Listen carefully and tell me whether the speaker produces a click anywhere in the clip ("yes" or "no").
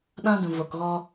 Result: no